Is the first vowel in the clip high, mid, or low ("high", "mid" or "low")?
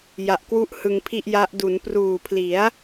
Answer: low